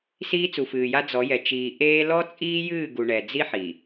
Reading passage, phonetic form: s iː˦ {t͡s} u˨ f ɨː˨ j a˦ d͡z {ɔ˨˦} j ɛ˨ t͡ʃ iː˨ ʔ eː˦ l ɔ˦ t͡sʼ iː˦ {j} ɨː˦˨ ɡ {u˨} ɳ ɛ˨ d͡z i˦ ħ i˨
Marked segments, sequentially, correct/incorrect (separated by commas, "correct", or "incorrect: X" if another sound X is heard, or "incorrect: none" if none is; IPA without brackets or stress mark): correct, correct, correct, correct